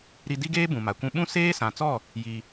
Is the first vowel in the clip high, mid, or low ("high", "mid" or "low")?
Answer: high